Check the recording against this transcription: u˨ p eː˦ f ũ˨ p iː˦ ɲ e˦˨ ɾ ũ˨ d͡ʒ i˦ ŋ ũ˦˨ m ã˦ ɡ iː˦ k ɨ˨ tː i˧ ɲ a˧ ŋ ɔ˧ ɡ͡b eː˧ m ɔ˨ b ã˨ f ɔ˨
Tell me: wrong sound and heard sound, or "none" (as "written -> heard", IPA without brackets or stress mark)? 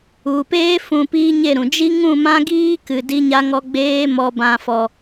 tː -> d